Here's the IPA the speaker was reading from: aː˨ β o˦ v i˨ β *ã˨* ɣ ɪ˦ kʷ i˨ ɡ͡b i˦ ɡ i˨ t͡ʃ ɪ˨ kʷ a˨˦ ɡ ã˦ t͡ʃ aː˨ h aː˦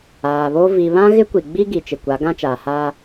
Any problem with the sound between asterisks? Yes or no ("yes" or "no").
yes